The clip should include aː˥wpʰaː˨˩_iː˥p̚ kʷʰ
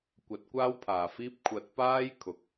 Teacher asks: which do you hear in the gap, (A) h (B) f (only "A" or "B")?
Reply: B